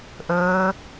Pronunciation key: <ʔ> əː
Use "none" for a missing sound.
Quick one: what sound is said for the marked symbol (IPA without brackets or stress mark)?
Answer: ʔ